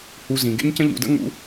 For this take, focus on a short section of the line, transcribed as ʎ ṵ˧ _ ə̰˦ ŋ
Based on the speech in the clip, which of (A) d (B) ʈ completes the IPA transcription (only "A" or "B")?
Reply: A